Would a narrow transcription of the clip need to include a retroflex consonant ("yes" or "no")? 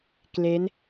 no